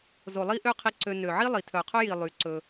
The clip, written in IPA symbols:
zo˨lˠi˦ʔø˦qʰi˧ ǀø˧ nø˨ʕi˦lˠi˨ tʰœ˨qʰɵ˦ji˨ lˠy˨˦ǀɵ˧

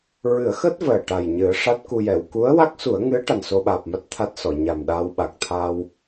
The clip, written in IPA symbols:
ɹɨ˨˩˦ə̯xəː˦˥t̚ vəː˨˩ʈa˨˩j ɲɨ˨˩˦ə̯ʂa˦˥t̚ku˧jɛ˨˩˨w ku˧˥ə̯wa˦˥k̚su˨˩˦ə̯ŋɨ˧˥ə̯ ʈa˨˩nso˧ɓaː˨˩p̚ma˦˥t̚ t̪ʰa˦˥t̚sɔ˨˩˨ ɲa˨˩mɗaː˧w ɓa˨˩k̚t̪ʰa˧w

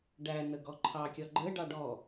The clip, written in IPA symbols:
ɖænəɡɔ ǃʰɑkʲɒ ɡ͡ǃə ɖɑɖɔ

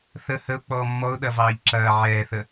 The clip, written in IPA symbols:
θə həʊ̯k͡pɔː mːɔʊ̯ɗɐvɑːʎ ǁɐː ʕɛːθə

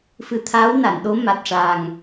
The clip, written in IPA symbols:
fɨ˨˩˦t̪ʰaː˧˥wna˨˩˨nɗo˧˥ ma˨˩t̚ʂaː˨˩ŋ

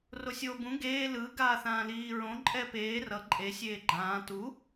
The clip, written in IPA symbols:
rosʲoːbũ ɡeː lɯ ɡaːθãːliːɹõ ǃʼɛpeː rʌ ǃʼe sʲeːɡ͡ǃãː tu

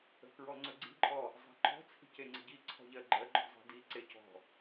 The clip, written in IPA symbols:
ə̤kɹɔŋ͡ǀɵɡ͡ǀi̤ ǃʼɔ | zˤæ̤ǃɔ̤ t͡sʰi̤ceŋ͡ǀə̤ɟi ǀʰɔ̤ʎɜɡ͡ǃɜ ɡ͡ǃɔ̤zˤi̤di ǀec ɔ̤

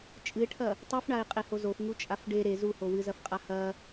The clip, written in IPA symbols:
t͡ʃʼɨɪ̯ʈʰɐ | tˤɨfɳaɪ̯ qʼehozofŋu t͡ʃʼafɖe ɾe zuho wɨzɐfqʼa hɐ

